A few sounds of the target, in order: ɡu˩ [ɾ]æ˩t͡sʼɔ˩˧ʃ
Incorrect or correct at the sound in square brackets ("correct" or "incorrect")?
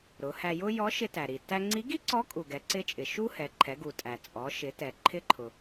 incorrect